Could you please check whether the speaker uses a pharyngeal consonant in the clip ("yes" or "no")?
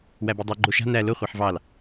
yes